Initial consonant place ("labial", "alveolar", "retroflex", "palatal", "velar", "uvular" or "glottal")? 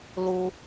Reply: alveolar